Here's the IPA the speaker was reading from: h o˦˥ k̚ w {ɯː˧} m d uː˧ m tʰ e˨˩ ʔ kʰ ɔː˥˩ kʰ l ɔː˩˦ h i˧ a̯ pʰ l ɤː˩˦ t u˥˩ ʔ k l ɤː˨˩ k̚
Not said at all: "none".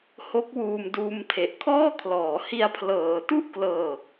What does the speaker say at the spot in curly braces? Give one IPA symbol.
uː˧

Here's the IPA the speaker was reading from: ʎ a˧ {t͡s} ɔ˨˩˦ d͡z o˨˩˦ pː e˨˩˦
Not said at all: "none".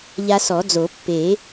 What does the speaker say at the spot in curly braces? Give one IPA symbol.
s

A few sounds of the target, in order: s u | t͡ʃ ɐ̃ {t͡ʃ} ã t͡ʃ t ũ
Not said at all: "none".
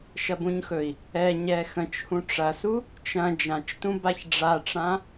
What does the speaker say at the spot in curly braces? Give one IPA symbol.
d͡ʒ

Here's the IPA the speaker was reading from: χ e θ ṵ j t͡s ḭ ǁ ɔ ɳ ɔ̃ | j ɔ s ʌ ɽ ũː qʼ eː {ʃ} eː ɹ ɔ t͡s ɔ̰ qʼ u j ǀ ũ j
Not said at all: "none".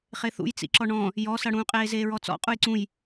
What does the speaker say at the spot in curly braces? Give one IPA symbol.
z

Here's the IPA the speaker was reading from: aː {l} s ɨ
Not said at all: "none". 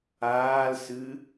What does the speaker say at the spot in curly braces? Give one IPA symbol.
l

